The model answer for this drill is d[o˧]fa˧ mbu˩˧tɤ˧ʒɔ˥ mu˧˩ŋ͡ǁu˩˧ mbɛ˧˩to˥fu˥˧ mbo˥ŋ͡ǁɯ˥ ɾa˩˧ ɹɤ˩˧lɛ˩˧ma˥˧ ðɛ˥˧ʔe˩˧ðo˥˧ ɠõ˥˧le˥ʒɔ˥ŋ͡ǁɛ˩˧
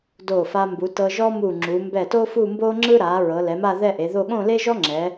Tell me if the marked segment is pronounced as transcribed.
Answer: no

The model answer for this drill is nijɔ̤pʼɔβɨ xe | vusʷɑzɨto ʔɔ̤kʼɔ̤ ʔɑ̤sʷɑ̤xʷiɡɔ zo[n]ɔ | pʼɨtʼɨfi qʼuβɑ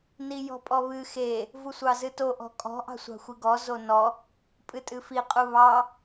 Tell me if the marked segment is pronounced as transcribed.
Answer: yes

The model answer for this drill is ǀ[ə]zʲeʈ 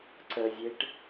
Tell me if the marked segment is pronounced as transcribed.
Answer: yes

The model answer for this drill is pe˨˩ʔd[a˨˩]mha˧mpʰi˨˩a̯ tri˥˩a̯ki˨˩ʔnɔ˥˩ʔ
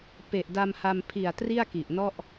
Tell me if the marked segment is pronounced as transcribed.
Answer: no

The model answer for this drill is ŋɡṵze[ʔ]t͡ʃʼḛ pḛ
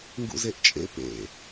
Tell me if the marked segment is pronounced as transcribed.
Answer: yes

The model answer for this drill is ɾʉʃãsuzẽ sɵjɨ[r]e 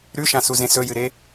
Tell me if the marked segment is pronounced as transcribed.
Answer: no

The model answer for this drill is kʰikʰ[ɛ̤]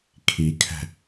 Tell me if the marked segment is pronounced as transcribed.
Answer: yes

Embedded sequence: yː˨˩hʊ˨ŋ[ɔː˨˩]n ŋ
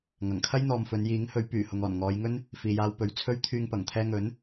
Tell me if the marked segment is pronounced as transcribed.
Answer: yes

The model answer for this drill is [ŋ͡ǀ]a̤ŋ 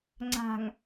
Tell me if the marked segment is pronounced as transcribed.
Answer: yes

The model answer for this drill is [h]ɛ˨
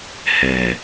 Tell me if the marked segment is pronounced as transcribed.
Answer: yes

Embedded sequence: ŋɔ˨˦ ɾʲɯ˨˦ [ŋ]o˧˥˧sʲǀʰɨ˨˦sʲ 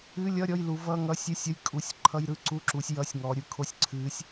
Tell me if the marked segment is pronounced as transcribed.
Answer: no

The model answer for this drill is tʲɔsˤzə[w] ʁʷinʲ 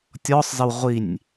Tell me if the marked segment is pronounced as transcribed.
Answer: yes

